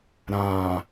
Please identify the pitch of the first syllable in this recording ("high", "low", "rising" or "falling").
low